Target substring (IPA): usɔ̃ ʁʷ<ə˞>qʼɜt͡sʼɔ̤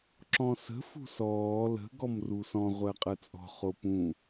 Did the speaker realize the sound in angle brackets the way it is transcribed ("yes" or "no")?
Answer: no